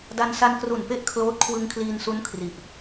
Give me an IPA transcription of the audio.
d a˧ n s a˧ n k r u˨˩ n p e˥˩ ʔ kʰ l oː˦˥ t̚ kʰ w ɯ˧ ŋ kʰ l iː˧ n s u˦˥ n kʰ r i˨˩ ʔ

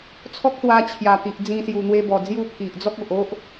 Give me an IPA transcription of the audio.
t͡sʰ ɔ˦ k̚ s w a˧ t͡ɕʰ j a˨˩ t̪ i˨ ʔ d͡z ĩ˧ s j u˨˩ n̪ w e˧ b ɔ˨˩ d͡z j u˥˧ pʰ i˨ ʔ d͡z ɔ˦ k̚ o˨ ʔ o˦ ʔ

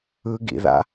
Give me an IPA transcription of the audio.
ɯ ɡ ḭ ð a̰

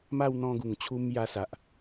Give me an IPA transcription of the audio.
m a˥˧ w n̪ ɔ̃˧ ɡ u˨˩ ŋ t͡ɕʰ u˧ m j a˧ s a˨ ʔ

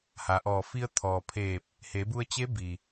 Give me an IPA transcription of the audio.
h a˩˧ ʔ ɔː˧˩ f i˧ ə̯ t̪ʰ ɔː˩ pʰ eː˧˩ p̚ | h e˩˧ b u˧ ə̯ t͡ɕ e˧˥ b i˩

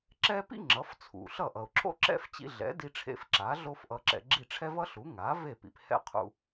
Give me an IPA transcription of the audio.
ǁ ɛ˥ p ḭ˥ ŋ͡ǁ ʌ˩˥ f t͡sʰ ṵ˩ ɬ ʌ˥˩ ʔ ʌ˩ ʊ̯ ǁʰ o̰˥ ǁ ɛ̰˥ f t͡ɕ ḭ˧ ɮ ɛ̰˩˥ d i˧ ʈ͡ʂʰ ḛ˧ f ǁ a˩˥ ɮ o˥ f ʔ ʌ˧ ǁ ɛ̰˧ ɡ͡ǁ i˥˩ ʈ͡ʂʰ ɛ˥ v ʌ˥ ɬ u˩˥ ŋ a˩˥ v e˥˩ p ḭ˩ p h ɛ̰˥˩ qʰ ṵ˧

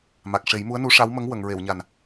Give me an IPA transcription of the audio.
m a˨˩ k̚ ʂ e˨˩˦ j m u˧˥ ə̯ n u˧˥ ʂ a˧˥ w m ə˧˥ ŋ w ə˨˩˨ ŋ ɹ e˨˩˨ w ɲ a˨˩ n

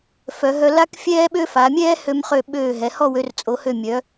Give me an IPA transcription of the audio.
f œ˩˧ ɦ œ˧ l a˥ k fʲ ɛː˥ ɓ ø˥ f a˩˧ mʲ ɛː˥ h ø˧ m χ ø˧˩ ɓ øː˧˩ ɦ ɛ˩˧ h ɔ˥˧ w ø˧ r t͡sʼ o˩˧ h ø˧˩ mʲ œ˩˧

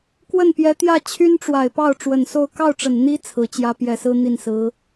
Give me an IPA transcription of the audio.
k w ə˥˩ n p j ɛ˧˥ t̪ j ä˥˩ t͡ɕʰ y˥ n ʈ͡ʂ w a˨˩ ɪ̯ p ɑ˥˩ ʊ̯ ʈ͡ʂ w ə˨˩ n s o˥˧ ʊ̯ k ɑ˥˩ ʊ̯ ʈ͡ʂ ə˨˩ n n̪ i˥ t͡sʰ ɹ̩˧˥ t͡ɕ j ä˥ p j ɛ˨˩ s ɹ̩˥ n̪ i˥˩ n s ɹ̩˧˥

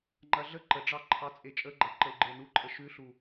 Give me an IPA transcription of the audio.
ŋ͡ǃ ɐ ɮ ə ǃ ə ɖ͡ʐ ɑ ǃʰ ɑ t͡sʼ e t͡ʃʼ ə ɡ͡ǃ ɐ ǃ ə u̯ ɡ͡ǃ e n u ǃʼ ə ʃ ʉ ɬ u

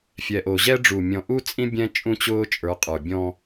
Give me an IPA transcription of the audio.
fʲ ɛ˨ ʔ o˨ ʑ ɛ˦ ɖ͡ʐ u˨ mʲ ɔ̃˨ ʔ u˦ t͡sʼ ĩ˦ bʲ ɛ̃˦ t͡ʃʼ ũ˦ t͡ɕ ʊː˦ t͡ʃʼ ə˞˨˦ qʼ ə˞˨ bʲ ɔ̃˦

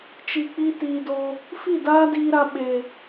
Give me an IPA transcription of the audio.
t͡ʃ i˨ k͡p i˧ t iː˨ d oː˧ | f i˦˨ d aː˦ d iː˧ ɾ a˧ ɓ eː˨

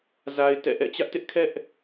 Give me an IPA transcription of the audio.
z a˦ ɪ̯ t ɛ̰˦˨ ʔ ɛ̰˦˨ t͡ɕ ä˦ ʔ t ɪ˦ ʔ kʰ ɛ˦ ʔ

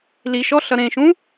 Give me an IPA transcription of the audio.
l i ʃ ɔ ɬ ʌ ɾ ẽ ʃ ũ

